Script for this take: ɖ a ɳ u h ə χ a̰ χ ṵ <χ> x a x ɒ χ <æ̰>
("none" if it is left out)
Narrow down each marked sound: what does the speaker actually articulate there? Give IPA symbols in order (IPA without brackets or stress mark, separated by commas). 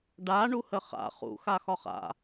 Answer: none, a̰